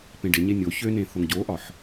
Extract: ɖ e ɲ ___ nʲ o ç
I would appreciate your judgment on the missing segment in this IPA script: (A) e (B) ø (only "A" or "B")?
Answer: A